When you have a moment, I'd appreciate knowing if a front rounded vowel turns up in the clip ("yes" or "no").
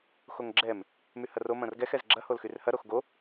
yes